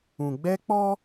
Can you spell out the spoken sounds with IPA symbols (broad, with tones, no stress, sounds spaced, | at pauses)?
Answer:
ũ˨ ɡ͡b ɛ˦ k͡p ɔ˦